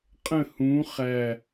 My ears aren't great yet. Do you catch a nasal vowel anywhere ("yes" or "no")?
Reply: yes